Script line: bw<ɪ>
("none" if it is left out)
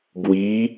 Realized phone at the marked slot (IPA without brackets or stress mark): i